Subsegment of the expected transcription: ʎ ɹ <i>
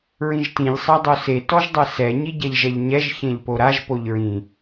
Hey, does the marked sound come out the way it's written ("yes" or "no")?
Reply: no